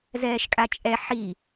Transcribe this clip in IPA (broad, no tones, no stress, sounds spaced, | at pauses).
z ɛː ʃ kʼ a t͡ʃʼ ɛ ħ i